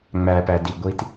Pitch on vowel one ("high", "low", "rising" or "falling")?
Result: low